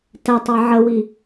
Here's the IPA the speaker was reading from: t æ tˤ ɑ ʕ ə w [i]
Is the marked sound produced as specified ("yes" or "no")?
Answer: yes